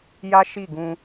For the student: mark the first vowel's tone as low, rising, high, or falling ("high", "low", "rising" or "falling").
high